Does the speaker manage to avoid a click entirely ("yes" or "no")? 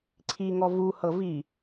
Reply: no